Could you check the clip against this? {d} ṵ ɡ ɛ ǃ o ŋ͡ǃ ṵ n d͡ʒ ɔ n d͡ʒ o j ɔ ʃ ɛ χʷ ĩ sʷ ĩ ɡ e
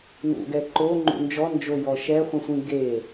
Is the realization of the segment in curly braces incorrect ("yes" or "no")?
yes